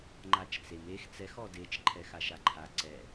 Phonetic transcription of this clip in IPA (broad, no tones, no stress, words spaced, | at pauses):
ŋ͡ǃat͡ʃt͡sem ex t͡sɛx ɔdet͡ʃ ǃʰɛxaʃaǃʰa ǀɛ